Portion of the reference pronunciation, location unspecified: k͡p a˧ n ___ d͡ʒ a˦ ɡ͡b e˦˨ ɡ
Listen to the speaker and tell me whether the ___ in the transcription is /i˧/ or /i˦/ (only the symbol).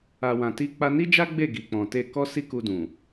i˦